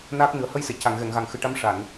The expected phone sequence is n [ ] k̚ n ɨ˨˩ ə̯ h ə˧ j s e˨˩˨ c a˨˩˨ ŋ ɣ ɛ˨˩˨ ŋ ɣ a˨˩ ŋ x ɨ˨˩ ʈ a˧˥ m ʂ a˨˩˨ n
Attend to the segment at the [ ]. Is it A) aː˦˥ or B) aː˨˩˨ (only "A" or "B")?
A